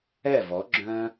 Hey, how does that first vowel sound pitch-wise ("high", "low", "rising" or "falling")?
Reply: falling